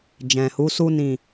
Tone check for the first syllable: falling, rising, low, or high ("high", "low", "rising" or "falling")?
low